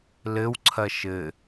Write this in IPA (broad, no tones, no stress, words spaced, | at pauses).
lɘwǀʰɐ ʃɘ